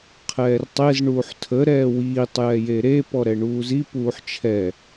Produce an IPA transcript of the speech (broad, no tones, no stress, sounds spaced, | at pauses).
qʰ ɛː r tˤ e z ɳ uː ħ tʰ ə ɾ ɛː w iː tˤ j ɛ j e ɾ e p ɔ ɾ ɛ ɳ uː z i p uː ħ t͡ʃʰ ɛ